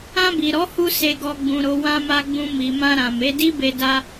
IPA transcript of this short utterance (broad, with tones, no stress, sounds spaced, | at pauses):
ã˧ b i˨ ɾ ɔ˨˦ h u˧ s e˧ ɡ ɔ˧ ɡ͡b ũ˧ ɾ o˧ w ã˧ m a˧ ɡ͡b ũ˧ m i˨ m ã˧ ɾ ã˨ m e˨˦ d i˦ b e˧ d a˧